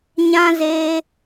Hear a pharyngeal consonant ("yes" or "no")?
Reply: no